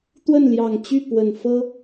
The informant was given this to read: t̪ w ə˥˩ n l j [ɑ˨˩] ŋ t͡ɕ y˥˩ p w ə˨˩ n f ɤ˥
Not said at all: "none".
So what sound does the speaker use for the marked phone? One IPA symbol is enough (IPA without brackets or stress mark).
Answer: ɑ˨˩